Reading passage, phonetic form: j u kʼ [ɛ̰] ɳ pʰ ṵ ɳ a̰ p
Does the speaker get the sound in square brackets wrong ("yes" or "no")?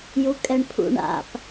yes